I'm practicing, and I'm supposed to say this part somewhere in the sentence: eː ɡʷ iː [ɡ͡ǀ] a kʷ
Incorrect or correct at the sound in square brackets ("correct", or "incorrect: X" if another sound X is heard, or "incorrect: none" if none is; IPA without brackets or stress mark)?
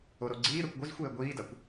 incorrect: d